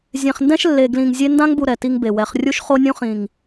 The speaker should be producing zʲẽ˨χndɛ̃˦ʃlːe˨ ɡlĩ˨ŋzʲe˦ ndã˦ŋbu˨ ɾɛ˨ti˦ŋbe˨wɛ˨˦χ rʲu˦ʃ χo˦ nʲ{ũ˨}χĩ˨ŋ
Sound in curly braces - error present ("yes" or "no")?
yes